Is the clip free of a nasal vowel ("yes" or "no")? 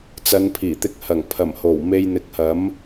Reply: yes